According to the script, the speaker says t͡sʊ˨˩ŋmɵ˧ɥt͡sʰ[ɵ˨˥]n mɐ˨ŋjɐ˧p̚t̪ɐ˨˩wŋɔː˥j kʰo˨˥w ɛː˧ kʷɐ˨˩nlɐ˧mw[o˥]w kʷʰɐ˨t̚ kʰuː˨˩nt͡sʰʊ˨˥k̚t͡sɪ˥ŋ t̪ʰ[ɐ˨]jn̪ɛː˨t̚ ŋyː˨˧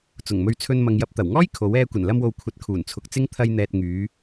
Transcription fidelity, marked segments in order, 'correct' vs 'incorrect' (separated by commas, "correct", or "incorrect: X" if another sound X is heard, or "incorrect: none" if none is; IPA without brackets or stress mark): incorrect: ɵ˧, incorrect: o˨, incorrect: ɐ˧